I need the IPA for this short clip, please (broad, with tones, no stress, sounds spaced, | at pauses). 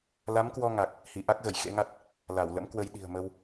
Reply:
l a˨˦ m k w ɔ˧ ŋ a˨˩ k̚ | h i˧˩ ʔ a˦˥ k̚ ɣ ə˧˩ j x ḛ˧˥ ŋ a˦˥ t̚ | l a˧˩ w l ə̰˧˥ m k w ə˧ j ɗ i̤˨˩ ə̯ m ə˧ w